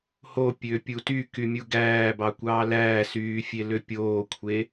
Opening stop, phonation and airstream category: plain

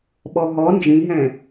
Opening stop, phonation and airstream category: implosive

